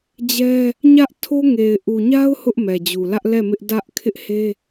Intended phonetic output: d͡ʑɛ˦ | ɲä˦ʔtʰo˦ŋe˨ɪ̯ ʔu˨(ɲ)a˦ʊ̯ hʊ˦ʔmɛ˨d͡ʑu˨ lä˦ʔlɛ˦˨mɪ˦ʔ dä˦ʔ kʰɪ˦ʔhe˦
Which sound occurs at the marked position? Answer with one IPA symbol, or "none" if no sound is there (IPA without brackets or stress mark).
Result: ɲ